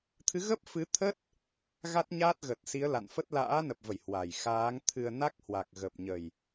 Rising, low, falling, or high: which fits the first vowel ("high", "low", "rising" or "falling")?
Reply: rising